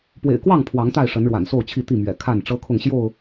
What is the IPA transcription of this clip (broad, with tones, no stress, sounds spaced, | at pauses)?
p w ḛ˨˩ ɪ̯ k w ɑ˥˨ ŋ pʰ w ɑ˨˦ ŋ t̪ a˥˨ ɪ̯ ʂ ə˨˦ n ɻ w a̰˨˩ n s o˥˨ ʊ̯ t͡ɕʰ i˥˨ t̪ i˥˨ m ɥ ɛ̰˨˩ kʰ a˥˨ n ʈ͡ʂ ɤ˦ kʰ ʊ˥˨ ŋ ɕ j o˥˨ ʊ̯